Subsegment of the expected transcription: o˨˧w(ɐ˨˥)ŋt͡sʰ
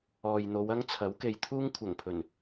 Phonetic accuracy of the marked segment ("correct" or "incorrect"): incorrect